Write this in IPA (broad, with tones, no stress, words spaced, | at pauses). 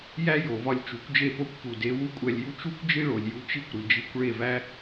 jæ˥jo˩vɒ˧lʲ t͡ʃu˩˥kʷd͡ʒe˥˩po˥kʷ pu˩de˩˥ wu˥kʷʼæ˧lʲju˥ t͡ʃu˥kʷd͡ʒi˥ ɭo˩lʲju˧ t͡ʃi˥kʷɾi˩d͡ʒi˧kʷ ɭe˥˩væ˥